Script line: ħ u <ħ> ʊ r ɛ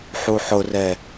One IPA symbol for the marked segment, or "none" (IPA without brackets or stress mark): ħ